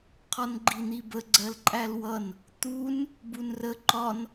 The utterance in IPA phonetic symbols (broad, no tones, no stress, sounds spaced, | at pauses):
qʰ ɒ n ɡ͡ǃ i n̪ i b ə ɡ͡ǀ ɜ l ǃʼ æ l w ʌ n | t̪ u n | b u n r ə ǃ ɒ n